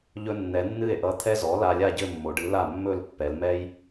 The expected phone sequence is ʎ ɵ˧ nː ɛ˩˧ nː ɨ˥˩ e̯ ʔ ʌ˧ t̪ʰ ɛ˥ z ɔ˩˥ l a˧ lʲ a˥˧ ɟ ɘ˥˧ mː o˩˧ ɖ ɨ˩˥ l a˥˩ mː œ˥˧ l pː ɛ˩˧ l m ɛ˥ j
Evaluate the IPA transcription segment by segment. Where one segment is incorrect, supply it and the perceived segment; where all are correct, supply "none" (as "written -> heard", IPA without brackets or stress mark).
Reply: œ˥˧ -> ɵ˥˧